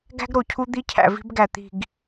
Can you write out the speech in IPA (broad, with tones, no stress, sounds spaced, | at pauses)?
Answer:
ɡ æ̤˦ ɡ ɾ o˨ cʰ u˦ d̪ i˦ cʰ æ̰˨ v i̤˦ b ɡ æ˨ t̪ i̤˦˨ ɡ